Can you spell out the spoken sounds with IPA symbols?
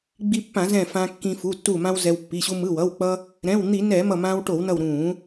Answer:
ɡ͡b i˧ pː ã˧˩˧ z ɛ̃˧˩ f ã˧ kː ĩ˧ f u˩˧˩ tː u˧˩ m ã˧ w z ɛ˧ w pː i˩˧˩ ɕ u˧ m ɯ˩˧˩ w ʌ˩˧˩ w k͡p ʌ˧ | ɾ ɛ̃˩˧˩ w n̪ i˧˩˧ n ɛ˧˩˧ m ʌ˧˩ m ã˧ w ʈ o˧˩˧ w n ʌ˧˩ w ɾ ũ˧˩˧

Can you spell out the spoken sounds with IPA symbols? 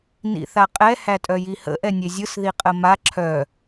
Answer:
n ḭ θ a qʼ ɛ h æ tʼ œ j i h ə̰ ʔ ɛ nʲ e zʲ ɯ s ð i qʼ ə m a ǁʰ œ

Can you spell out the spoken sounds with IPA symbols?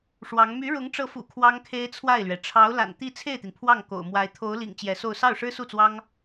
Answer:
ʂ w ɑ˧˥ ŋ m y˧˥ ɻ ʊ˧˥ ŋ ʈ͡ʂ ɤ˧˥ f ṵ˨˩ kʰ w ɑ˥ ŋ kʰ e˥ ɪ̯ t͡sʰ w a˥˩ ɪ̯ l ɥ ɛ˩ ʈ͡ʂʰ ɑ˧˥ ʊ̯ l a̰˨˩ n t̪ i˥˧ t͡sʰ e˥˩ ɪ̯ t̪ i˩ n pʰ w ɑ˥˩ ŋ k o̰˨˩ ʊ̯ m w a˧˥ ɪ̯ t̪ʰ o˧˥ ʊ̯ l ḭ˨˩ ŋ t͡ɕ j ɛ˧˥ s o˥˧ ʊ̯ s ɑ˥˩ ʊ̯ ʂ ɻ̩˥ s u˥˩ t͡s w ɑ˥ ŋ

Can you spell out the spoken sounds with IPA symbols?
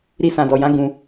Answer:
ɾ i˧ s ã˨ d ɔ˨ j ã˨˦ ɡ ũ˧

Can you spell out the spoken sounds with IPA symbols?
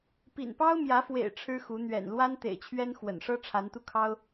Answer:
p ḭ˨˩ n p ɑ˦ ʊ̯ m j ä˨˦ f w ḛ˨˩ ɪ̯ ʈ͡ʂʰ ɻ̩˦ x u˨˦ n̪ ɥ ɛ̰˨˩ n l w a˦ n t̪ ḛ˨˩ ɪ̯ t͡ɕʰ ɥ ɛ˦ n x w ə̰˨˩ n ʂ ɤ˦ ʈ͡ʂʰ a˨˦ n t̪ u˧ kʰ ɑ˦ ʊ̯

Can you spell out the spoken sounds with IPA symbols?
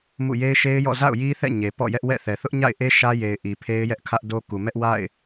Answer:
m ṵ˦˨ j e˦ ɪ̯ ʃ e˦ ɪ̯ j ɔ̰˦˨ z a̰˦˨ ʊ̯ j i˦ θ ɛ̰˦˨ ɲ e˨ p ɔ̰˦˨ j ɛ˦ ʔ w ɛ̰˦˨ θ ɛ˨ θ ʊ˦ ʔ ɲ a̰˦˨ ɪ̯ ʔ e˦ ʃ ä˦ j e˨ ɪ̯ ʔ i˨ pʰ e˦ ɪ̯ j ɛ˦ ʔ kʰ ä˦ ʔ d o˦ k u˨ m ɛ˦ ʔ w a̰˦˨ ɪ̯

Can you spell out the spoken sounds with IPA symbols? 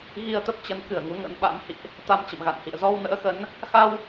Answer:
ɣ i˧ ə̯ t̪ ə˦˥ p̚ t͡ɕ ə˨˦ n k ɨ˧˩ ə̯ ŋ u˨˦ ŋ ə̰˧˥ n ɓ a̰˧˥ m h ḭ˧˨ ʔ | t̪ a˧ m t͡ɕ ə̰˧˨ m ɣ a̰˧˨ n h ḭ˧˨ ə̯ z ɔ˧ w n ə̰ː˧˥ x ə˨˦ n | x a˧ w

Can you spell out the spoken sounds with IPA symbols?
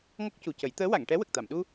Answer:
ŋ ɔ˦˥ k̚ c u˨˩ c ə˨˩˦ j t̪ əː˧˥ w a˨˩˨ ŋ ʈ ɛ˧˥ w ə˨˩ k̚ t̪ a˨˩˨ m ɗ u˧

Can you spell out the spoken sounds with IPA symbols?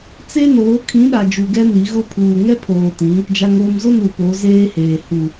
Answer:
t͡s e˦ n oː˨˦ kʰ ĩ˨˦ ɗ a˨ d͡ʒ u˨ ɡ ɛ˦ n i˨˦ ɣ ʊ˦ pʰ uː˨ ŋ ɛ˦ pʰ oː˨ t ĩ˨˦ | d͡ʒ a˨ ŋ oː˨ m z ʊ˦˨ n u˨ p o˨˦ z eː˦ h eː˨ h u˨

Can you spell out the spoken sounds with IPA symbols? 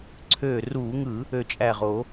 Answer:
ǀʰ øː˧˩ r uː˧˩˧ ŋ ɯ˧˩˧ | ø˧˩ t͡ʃʼ æ˧˩ ʁ o˧˩˧

